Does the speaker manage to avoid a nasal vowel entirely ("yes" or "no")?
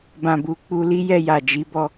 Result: no